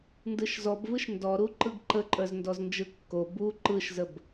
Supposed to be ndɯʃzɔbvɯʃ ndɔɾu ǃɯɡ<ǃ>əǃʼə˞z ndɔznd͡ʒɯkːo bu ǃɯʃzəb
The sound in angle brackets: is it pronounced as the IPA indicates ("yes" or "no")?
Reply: yes